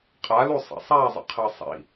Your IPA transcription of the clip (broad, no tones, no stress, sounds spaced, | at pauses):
qʼ a l u sˤ ɛ̰ sˤ a zˤ ə̰ qʰ əː sˤ ḭ